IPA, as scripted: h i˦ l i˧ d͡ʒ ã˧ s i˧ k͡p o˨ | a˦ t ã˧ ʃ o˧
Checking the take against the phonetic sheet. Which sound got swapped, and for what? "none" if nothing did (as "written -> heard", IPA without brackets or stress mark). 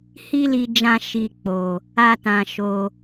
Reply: s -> ʃ